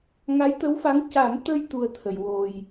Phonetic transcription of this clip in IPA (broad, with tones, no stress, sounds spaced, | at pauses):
ŋ a˧˥ j t̪ ə˧˥ w f a˧˥ ŋ c a˨˩˦ m t̪ ə˧ j t̪ u˧ ə̯ t̪ʰ ə˨˩˨ j w o˨˩ j